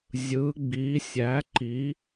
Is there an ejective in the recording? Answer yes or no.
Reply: no